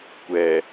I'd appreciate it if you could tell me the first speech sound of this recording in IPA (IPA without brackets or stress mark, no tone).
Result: kʷ